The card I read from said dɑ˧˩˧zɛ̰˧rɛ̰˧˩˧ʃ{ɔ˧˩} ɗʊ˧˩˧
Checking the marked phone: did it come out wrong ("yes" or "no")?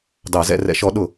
yes